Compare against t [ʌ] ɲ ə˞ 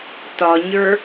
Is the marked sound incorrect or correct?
incorrect